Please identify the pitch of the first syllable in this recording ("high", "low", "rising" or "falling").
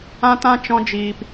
high